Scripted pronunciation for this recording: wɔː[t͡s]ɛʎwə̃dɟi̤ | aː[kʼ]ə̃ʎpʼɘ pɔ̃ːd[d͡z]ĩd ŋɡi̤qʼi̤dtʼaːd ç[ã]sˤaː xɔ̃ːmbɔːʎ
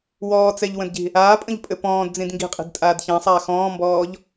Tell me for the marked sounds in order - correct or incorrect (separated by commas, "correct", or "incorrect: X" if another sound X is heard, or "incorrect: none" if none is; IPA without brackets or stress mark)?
correct, incorrect: pʼ, correct, correct